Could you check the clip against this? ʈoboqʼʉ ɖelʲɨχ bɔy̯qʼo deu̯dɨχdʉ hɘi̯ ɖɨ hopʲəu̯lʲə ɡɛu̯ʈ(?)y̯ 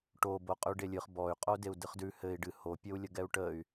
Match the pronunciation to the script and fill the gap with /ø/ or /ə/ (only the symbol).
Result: ə